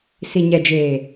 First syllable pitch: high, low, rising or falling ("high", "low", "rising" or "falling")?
low